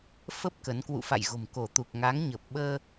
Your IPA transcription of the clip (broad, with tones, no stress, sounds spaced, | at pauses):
f ə˦˥ p̚ k ə˨˦ n k w ṵ˧˨ f a̰˧˨ j ɣ o̤˨˩ m k o˧˩ t̪ u˨˩ k̚ ŋ a˨˦ ŋ ɲ ə˨˩ p̚ ɓ əː˧